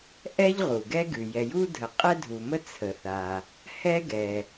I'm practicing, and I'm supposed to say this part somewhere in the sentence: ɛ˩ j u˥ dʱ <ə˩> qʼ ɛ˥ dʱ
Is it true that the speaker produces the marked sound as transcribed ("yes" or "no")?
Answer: yes